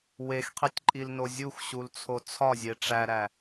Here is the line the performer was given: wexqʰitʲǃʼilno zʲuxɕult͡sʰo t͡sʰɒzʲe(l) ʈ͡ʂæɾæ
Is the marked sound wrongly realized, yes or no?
yes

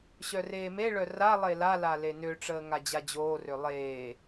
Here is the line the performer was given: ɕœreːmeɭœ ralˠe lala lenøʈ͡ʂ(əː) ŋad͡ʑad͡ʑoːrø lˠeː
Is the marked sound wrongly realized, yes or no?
no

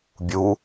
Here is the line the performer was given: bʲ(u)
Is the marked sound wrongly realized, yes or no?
no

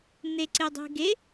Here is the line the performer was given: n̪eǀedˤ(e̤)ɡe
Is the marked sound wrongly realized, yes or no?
no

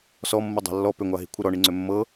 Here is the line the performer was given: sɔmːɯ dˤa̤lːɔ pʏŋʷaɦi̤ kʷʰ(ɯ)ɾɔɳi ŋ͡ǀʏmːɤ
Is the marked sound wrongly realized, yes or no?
no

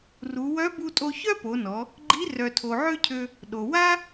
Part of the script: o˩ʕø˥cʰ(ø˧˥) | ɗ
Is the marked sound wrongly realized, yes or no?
yes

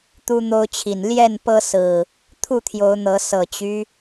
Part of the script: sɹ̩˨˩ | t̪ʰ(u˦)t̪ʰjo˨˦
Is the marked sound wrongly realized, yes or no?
yes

